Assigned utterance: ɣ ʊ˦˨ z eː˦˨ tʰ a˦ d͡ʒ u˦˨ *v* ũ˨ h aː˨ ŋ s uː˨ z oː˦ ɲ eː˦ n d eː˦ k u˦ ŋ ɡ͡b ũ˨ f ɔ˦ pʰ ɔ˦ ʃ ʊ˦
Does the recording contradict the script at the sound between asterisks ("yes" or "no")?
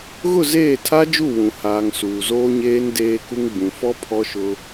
yes